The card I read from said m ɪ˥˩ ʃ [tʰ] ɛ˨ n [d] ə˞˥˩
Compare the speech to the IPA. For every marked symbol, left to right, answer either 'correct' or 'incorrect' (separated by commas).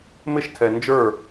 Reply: correct, incorrect